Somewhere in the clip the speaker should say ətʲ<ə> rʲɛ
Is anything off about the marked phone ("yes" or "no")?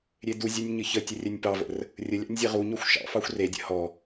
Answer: no